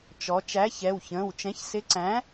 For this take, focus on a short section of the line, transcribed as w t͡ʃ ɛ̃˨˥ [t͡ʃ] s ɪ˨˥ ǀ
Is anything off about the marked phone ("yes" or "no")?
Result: yes